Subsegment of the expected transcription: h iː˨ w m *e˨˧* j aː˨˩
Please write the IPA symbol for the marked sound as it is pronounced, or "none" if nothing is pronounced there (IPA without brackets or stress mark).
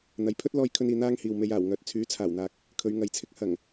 e˨˧